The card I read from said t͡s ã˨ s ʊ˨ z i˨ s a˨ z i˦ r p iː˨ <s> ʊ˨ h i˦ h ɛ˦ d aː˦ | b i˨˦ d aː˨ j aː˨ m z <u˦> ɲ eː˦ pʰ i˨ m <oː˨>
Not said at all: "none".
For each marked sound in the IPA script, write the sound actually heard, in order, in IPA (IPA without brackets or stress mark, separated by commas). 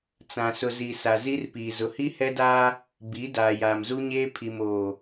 z, u˦, oː˨